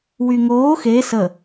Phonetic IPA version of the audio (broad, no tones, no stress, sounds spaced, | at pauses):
w y ŋ oː x e s ə